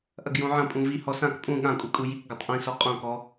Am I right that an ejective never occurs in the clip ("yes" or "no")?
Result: no